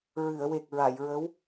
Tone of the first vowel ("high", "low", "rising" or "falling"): low